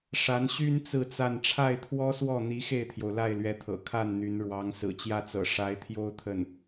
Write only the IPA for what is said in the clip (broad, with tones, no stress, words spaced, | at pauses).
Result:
ʂa˧˥nɕy˥n t͡sɹ̩˥˧t͡sa˥˧n ʈ͡ʂʰa˥˩ɪ̯t̪ʰwɔ˥swɔ˥˩ n̪i˧˥xe˥˩ɪ̯t̪ʰjo˩ʊ̯ la˥˩ɪ̯lɥɛ˧˥t̪ʰɤ̰˨˩ kʰa˥˩n n̪y˧˥n ɻwɑ˧˥ŋ sɹ̩˨˩t͡ɕjä˥˩t͡sɤ̰˨˩ ʂa˧˥ɪ̯t̪ʰjo˥ʊ̯t̪ʰə˥˩n